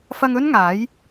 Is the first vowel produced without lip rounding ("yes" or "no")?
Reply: yes